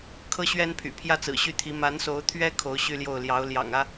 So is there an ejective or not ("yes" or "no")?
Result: no